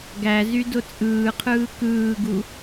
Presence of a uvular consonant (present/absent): present